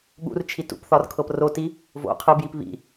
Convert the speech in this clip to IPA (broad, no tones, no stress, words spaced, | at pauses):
ɠṵrt͡ʃʰi tṵpθɒr kʰɤproti | vo̰ qʰɨbjip βḭ